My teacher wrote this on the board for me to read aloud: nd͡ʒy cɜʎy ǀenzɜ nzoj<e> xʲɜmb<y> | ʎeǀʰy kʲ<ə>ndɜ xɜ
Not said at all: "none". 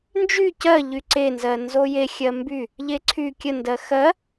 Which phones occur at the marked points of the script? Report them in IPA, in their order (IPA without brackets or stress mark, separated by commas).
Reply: e, y, ə